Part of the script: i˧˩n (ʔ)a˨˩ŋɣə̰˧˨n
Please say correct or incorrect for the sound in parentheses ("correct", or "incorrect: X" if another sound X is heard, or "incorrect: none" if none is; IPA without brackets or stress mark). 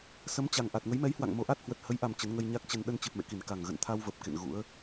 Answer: incorrect: k